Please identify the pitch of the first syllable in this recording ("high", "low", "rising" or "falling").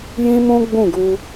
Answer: high